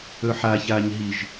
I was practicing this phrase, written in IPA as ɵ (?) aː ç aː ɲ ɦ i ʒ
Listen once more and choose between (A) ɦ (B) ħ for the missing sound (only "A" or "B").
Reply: B